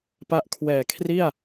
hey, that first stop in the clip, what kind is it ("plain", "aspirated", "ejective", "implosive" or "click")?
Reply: plain